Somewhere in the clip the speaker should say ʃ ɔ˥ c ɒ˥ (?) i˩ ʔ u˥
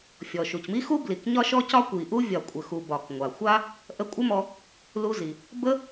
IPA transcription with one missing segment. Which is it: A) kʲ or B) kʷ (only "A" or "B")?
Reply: B